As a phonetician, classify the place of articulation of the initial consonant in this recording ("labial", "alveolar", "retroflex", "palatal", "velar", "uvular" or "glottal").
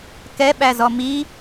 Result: velar